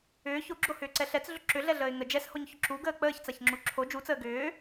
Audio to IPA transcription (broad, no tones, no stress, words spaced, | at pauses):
ʏː çoɡ͡ǁohʏːǀɛ ɬɛt͡sɮʏ ǁʏɮɛɮəːɪ̯ ŋə d͡ʒɛshoɲçʊ ǁuɡəː k͡pəːçt͡saçŋ͡ǁu ǁʰo d͡ʒut͡səː ɡʏː